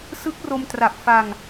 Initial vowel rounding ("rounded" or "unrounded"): unrounded